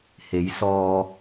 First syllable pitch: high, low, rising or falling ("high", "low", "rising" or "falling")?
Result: rising